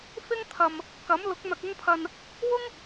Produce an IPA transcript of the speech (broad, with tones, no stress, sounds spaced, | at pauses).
f ɪ˥ ŋ t̪ʰ ɐ˨ m | k ɐ˨˥ m l ʊ˨˥ k̚ n̪ ɐ˨ k̚ ʊ˧ ŋ pʰ ɐ˨ n | w ʊ˥ ŋ